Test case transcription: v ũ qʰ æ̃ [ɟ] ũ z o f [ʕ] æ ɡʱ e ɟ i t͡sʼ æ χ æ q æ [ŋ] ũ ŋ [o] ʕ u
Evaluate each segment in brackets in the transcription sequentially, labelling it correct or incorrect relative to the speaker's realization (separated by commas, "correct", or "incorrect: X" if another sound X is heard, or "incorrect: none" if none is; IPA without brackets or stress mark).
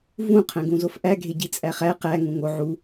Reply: incorrect: ɡ, incorrect: ʔ, correct, correct